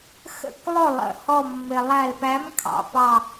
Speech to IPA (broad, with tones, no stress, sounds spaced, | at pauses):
x ə̰˧˩ k lˠ ʊ˧˩ lˠ ə̰˩˧ h ɔ˧˩ mː ɪ˩ lˠ æ˧˩ l p æ˨˥ m kʰ ɑ̰˩ p ɑ˧˩